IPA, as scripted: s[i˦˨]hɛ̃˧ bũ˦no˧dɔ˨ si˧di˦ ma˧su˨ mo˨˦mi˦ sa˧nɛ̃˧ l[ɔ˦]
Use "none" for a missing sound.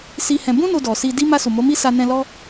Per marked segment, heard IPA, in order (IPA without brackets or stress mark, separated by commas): i˧, ɔ˦